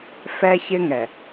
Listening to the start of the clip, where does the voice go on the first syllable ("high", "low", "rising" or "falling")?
high